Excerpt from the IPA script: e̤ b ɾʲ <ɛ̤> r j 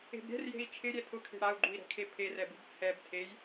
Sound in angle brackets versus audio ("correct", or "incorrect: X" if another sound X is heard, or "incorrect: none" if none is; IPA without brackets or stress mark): correct